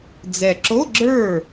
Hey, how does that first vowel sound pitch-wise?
low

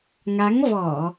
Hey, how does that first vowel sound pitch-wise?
rising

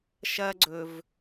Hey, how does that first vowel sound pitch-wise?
high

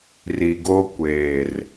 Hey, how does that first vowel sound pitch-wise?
low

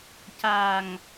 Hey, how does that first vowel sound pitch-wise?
low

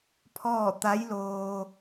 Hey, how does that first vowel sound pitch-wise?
falling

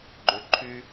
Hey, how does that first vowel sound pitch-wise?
low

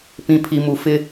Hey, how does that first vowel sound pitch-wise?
low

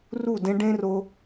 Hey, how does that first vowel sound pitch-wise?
falling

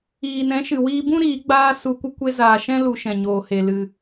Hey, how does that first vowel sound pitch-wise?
low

